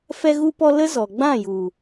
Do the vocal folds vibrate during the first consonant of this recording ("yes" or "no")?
no